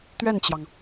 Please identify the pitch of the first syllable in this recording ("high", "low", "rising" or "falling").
falling